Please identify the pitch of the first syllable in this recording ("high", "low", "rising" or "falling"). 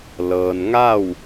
low